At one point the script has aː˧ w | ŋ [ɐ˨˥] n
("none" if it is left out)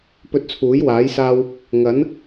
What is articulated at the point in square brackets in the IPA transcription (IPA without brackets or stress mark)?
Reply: ɐ˨˥